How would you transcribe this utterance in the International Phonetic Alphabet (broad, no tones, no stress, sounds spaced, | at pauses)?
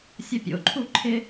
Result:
sʲ ʌ pʲ o̰ ǃʰ u ǃʰ ɪ